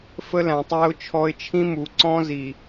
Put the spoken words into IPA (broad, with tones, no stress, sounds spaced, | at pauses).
f ə˦ l æ̃˨ tˤ æ˦ ʊ̯ t͡ʃʰ ɔ˦ ɪ̯ t͡ʃʰ ĩ˦ m u˨ ǀ ɔ̃˦ z i˨